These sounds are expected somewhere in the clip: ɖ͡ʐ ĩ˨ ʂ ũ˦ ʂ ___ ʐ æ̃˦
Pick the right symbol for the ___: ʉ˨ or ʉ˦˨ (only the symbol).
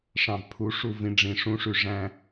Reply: ʉ˨